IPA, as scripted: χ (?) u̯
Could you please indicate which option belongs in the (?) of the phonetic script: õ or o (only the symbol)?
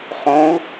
õ